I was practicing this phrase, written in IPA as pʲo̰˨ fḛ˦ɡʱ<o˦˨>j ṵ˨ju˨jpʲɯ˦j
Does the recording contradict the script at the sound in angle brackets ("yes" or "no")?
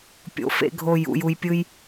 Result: no